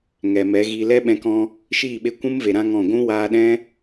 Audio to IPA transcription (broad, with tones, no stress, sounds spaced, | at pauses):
ŋ ɛ˨ m ɛ˨˦ ɣ i˧ l ɛ˦ ɓ ɛ̃˧ k ɔ̃˧ | ʃ iː˦˨ ɓ e˧ kʷ ũ˦ m v e˨ ɾ ã˦ ŋ ɔ̃˦˨ ɡʷ ũ˦ w aː˧ ɗ ɛ̃˦